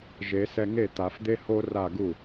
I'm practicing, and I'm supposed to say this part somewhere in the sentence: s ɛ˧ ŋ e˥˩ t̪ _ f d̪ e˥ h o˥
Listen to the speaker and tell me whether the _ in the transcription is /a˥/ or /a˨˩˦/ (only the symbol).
a˨˩˦